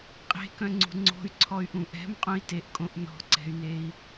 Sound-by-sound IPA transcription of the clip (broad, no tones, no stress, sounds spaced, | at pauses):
qʼ e̤ k œ̃ ŋ͡ǀ ṳ ŋ͡ǀ o̤ y̯ ǀʰ ɔ y̯ ʔ ũ ʔ ɛ̤ m qʼ ũ i̯ t e ʔ kʼ õ ʔ n ɔ̤ ǀ ɛ̤ y̯ n e i̯